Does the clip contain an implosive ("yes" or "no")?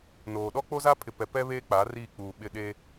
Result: yes